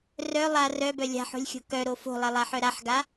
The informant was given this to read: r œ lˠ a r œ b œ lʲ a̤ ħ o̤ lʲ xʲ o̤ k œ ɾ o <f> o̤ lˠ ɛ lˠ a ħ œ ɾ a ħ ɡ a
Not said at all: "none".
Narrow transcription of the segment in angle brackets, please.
f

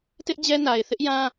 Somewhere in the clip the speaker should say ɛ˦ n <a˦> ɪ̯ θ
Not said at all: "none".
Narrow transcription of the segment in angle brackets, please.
a˨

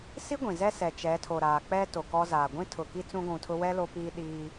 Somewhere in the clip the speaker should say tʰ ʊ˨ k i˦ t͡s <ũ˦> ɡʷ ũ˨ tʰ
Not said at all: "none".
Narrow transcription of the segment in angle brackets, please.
ũ˦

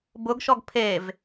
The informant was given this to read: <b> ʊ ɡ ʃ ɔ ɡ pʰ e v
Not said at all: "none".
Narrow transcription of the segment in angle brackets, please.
b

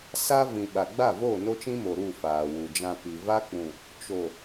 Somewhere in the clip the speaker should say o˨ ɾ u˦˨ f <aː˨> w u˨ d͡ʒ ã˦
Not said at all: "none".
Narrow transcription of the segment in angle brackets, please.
aː˨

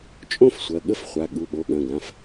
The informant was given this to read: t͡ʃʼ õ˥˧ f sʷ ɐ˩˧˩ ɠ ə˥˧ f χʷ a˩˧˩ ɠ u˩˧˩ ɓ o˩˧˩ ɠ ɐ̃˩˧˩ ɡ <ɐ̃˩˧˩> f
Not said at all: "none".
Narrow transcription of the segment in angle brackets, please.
ã˩˧˩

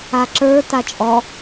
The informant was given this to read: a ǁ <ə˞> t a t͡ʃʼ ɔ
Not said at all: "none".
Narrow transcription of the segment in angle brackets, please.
ə˞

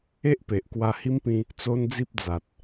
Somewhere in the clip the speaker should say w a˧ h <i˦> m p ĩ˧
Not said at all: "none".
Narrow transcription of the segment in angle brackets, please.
i˦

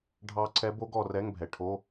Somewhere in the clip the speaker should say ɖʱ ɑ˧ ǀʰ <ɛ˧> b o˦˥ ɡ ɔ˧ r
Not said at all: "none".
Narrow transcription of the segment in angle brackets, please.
ɛ˦˥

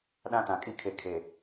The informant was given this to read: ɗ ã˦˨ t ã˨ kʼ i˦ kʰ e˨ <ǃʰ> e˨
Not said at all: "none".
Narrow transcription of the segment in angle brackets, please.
kʰ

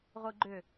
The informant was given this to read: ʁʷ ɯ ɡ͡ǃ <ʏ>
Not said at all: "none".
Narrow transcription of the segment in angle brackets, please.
ʏ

